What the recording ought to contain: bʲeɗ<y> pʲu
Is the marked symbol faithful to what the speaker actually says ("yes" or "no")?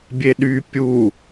yes